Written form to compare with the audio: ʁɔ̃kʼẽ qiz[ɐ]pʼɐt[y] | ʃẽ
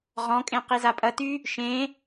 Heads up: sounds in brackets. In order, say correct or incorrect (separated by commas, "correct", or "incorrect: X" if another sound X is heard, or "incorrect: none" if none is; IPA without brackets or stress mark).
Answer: incorrect: a, correct